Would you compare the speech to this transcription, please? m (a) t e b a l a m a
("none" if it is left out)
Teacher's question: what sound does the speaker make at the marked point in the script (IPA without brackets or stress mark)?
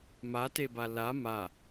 a